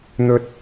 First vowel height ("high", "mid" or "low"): mid